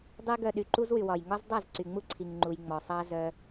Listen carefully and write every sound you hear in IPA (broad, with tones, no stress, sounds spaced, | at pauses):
dˤ y˦ ɡ œ˧ ɗ y˨ ǃ u˦ z w y˨ w ɒ˨ j ŋ ɒ˦ z dˤ a˦˨ z ǀ y˨ ŋ͡m u˦ ǀʰ i˨ ŋ ŋ͡ǃ u˨ j ŋ͡m ɔ˨ sˤ a˦ z œ˧